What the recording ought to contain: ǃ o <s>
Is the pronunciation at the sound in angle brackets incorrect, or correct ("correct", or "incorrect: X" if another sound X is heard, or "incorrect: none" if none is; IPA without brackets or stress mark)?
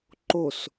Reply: correct